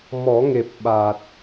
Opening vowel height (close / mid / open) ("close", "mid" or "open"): mid